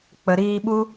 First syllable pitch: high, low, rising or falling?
low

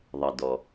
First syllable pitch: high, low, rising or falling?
low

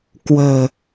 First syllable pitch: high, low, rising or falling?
low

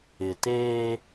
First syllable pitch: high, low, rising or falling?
low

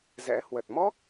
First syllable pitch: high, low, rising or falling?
rising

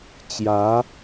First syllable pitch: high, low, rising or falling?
rising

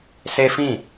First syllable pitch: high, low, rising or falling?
high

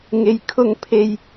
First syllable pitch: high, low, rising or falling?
low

